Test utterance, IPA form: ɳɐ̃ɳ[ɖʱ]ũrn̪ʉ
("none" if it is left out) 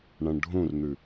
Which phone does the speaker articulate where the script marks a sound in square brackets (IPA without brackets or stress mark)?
ɖʱ